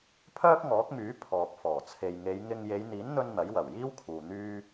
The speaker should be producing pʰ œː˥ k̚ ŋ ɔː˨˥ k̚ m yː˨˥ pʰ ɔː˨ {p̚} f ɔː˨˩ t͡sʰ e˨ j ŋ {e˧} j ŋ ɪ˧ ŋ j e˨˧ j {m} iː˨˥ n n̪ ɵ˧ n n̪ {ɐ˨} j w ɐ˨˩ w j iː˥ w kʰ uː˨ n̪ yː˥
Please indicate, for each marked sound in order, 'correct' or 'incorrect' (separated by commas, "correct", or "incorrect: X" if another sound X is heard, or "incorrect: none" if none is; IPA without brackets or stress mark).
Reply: correct, incorrect: e˨˧, incorrect: n̪, incorrect: ɐ˨˥